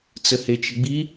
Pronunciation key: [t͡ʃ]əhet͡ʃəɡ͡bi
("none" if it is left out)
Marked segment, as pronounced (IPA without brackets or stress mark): t͡s